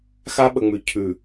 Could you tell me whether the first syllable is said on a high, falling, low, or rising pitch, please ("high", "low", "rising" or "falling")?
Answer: high